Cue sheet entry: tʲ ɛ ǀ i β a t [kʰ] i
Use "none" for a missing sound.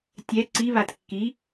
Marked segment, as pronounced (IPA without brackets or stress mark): kː